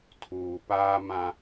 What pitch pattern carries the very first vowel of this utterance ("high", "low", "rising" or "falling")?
low